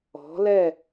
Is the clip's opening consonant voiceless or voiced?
voiced